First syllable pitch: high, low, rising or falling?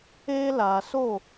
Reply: high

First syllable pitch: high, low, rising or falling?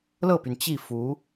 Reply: falling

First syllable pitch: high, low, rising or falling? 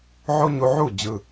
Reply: high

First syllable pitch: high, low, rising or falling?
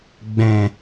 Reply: low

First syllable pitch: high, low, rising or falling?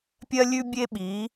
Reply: high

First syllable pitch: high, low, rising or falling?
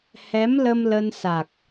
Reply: rising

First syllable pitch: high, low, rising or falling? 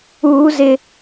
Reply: high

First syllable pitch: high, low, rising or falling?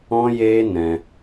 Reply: high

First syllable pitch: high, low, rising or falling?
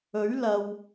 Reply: rising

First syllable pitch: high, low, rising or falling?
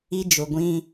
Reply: high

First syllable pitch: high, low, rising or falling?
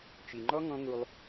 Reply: low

